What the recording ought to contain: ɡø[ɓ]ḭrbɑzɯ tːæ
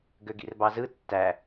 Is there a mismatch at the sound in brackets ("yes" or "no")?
yes